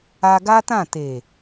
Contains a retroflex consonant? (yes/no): no